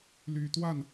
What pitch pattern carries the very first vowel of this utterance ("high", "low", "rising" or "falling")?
low